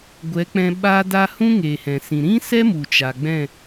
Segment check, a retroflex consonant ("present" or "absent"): absent